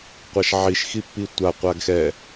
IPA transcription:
qʷaʃʕiʃxipːi tʷa qʷaɡxɛ

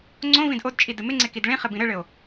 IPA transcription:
ŋ͡ǀõ vĩdʔodt͡ʃʼi dɘmɪŋ͡ǀe kidɭĩχɪ bĩɾɘɭɘo̯

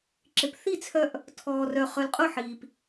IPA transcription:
ǁɪ˨pθi˥˨t͡sʰœ˦ʔ | tʰɔː˨rœ˨ χœ˨lqʼʊ˥˨ħiː˨p

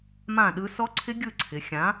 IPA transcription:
mã˥˨ɗɯ˦˥ sɔ˦˥ǀʰɪ˦˥ ɡʲɯ˥˨ǀʰɪ˩˧ xʲã˨˥

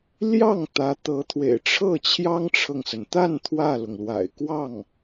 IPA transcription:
ljɑ˥˩ŋ t̪ä˧˥t̪ɤ˧˥t̪ʰwḛ˨˩ɪ̯ ʈ͡ʂʰɤ˥˩ t͡ɕʰjɑ˥ŋʈ͡ʂʰɤ˨ŋsə˩n t̪a˥˧n t̪ʰwä˥˩lʊ˩ŋlwa̰˨˩ɪ̯ kwɑ˥˩ŋ

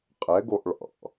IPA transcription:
qʼɛɡoʔ ɭɑ̰

